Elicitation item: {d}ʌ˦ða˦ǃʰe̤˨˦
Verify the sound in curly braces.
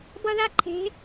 incorrect: b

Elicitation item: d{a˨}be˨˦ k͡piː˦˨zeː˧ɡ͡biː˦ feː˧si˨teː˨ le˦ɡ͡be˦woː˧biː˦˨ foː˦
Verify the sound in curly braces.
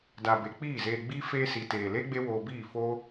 correct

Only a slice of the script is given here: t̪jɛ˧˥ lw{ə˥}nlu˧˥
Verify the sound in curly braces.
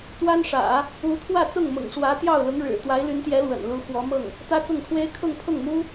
incorrect: ə̰˨˩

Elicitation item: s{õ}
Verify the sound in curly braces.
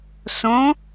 correct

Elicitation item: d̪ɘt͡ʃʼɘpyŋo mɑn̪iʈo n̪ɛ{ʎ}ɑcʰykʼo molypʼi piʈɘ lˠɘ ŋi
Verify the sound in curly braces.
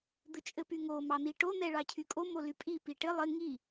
incorrect: ɭ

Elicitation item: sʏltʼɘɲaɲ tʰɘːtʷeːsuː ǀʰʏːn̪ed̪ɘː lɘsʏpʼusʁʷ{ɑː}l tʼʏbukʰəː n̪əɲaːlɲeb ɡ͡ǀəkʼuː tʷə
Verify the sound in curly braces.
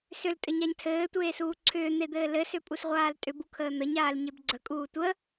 incorrect: aː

